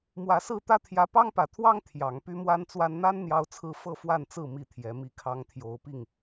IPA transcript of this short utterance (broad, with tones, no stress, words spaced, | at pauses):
mwä˨˦sɹ̩˥˨t̪ä˦ t̪ʰjä˨˦pɑ˦ŋpä˨˩t̪ʰwɑ˦ŋ t̪ʰjɑ˨˦ŋ py˦mwa˦nt͡swa˦n n̪a˦n n̪jɑ˦ʊ̯t͡sʰɹ̩˦ fɤ˥˨fwa˥˨nt͡sɹ̩˥˨ mi˥˨t̪ʰjɛ˨˦ mi˨˦kʰɑ˨˦ŋ t̪ʰjo˨˦ʊ̯pi˥˨ŋ